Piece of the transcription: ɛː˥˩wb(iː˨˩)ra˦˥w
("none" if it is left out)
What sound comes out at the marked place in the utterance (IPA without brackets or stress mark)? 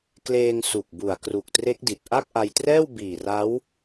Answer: iː˨˩